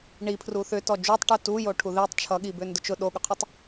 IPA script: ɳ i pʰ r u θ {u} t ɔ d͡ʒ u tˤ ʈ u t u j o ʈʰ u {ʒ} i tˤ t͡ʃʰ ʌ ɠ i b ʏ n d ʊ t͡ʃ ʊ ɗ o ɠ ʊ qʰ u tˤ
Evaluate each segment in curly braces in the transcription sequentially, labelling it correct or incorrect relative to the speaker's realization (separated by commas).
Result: incorrect, incorrect